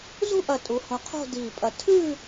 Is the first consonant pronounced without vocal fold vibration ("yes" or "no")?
no